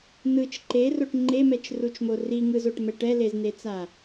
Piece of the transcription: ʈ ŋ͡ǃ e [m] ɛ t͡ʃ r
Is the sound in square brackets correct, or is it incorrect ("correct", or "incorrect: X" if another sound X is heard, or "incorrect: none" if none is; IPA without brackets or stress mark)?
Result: correct